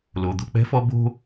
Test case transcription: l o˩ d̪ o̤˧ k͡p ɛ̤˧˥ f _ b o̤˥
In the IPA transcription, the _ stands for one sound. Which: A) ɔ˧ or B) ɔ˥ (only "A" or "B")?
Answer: B